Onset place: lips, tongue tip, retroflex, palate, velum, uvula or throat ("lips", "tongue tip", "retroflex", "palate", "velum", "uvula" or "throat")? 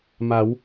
lips